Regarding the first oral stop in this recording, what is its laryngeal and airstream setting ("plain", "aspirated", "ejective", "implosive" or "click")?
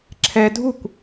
click